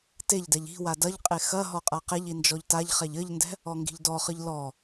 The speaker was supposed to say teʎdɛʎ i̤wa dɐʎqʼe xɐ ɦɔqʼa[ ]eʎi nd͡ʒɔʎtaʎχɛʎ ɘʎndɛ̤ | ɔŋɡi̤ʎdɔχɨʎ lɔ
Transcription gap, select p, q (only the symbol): q